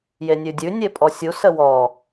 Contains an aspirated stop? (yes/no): no